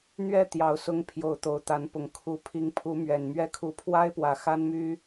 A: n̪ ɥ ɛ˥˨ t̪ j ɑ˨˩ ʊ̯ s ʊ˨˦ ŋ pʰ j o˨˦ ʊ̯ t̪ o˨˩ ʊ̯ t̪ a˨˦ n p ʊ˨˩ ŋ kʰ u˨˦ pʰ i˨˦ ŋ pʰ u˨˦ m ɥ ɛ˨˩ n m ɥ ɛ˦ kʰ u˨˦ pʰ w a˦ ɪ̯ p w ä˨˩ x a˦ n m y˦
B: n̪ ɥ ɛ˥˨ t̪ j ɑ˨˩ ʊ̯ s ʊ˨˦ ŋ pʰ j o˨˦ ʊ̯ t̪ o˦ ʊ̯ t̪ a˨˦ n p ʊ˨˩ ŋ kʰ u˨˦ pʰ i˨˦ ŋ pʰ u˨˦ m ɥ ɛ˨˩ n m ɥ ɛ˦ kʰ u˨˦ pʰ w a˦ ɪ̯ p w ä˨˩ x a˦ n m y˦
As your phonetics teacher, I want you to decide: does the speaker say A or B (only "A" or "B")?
A